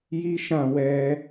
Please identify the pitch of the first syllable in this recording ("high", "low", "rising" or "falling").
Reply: high